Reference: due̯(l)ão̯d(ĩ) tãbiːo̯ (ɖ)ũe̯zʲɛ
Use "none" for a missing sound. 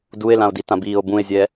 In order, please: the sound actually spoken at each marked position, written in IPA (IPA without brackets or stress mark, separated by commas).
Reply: l, i, b